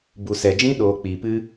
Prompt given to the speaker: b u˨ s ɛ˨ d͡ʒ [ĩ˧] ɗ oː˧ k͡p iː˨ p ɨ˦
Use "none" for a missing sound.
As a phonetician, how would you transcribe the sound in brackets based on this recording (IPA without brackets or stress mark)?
ĩ˧